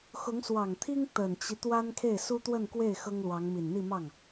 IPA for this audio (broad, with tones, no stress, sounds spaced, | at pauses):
x ʊ˧˥ ŋ s w ɑ˨˩ ŋ t̪ʰ i˥ ŋ t̪ ə˨˩ n t͡ɕ i˦ t̪ w a˥ n kʰ e˥˩ ɪ̯ s u˥ t̪ w ə˥˧ n k w e˥˩ ɪ̯ x ɤ˥ ŋ l w ɑ˧˥ ŋ m i˨˩ n n̪ i˥˧ m ɑ˥˩ ŋ